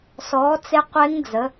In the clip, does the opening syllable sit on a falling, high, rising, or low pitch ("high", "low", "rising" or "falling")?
rising